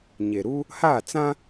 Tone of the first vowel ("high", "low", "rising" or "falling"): low